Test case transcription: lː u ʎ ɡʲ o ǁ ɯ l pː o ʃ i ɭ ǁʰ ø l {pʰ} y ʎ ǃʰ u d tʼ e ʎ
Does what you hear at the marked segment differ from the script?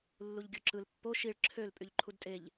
yes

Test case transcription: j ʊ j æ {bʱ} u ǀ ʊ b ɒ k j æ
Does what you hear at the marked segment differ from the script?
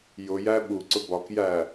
yes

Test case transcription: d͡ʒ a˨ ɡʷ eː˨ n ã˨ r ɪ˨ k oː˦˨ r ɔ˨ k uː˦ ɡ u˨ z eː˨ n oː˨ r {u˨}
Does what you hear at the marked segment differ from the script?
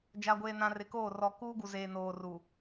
no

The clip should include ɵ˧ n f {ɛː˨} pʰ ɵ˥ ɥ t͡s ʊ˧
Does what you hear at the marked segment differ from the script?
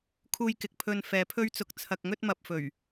no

